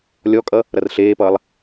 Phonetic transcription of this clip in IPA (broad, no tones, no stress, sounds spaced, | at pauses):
lʲ ɔ kʼ ʌ | ɾ ʌ r ɬ eː p ʌː lˠ